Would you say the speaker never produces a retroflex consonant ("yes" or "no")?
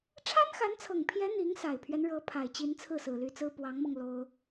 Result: no